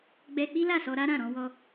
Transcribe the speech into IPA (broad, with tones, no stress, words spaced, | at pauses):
ɡ͡bɛ˦ k͡pi˦la˦˨sɔ˧ɾa˦ ɾã˦˨ɾɔ̃˨˦wɔ˦